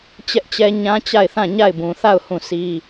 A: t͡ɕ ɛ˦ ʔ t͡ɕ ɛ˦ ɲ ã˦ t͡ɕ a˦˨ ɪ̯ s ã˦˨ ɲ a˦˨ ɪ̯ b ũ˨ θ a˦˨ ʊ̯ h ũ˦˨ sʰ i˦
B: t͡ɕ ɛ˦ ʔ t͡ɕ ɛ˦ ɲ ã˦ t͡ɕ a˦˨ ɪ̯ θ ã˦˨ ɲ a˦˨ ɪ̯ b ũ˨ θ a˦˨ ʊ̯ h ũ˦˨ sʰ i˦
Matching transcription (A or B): B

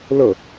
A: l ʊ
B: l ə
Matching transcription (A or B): B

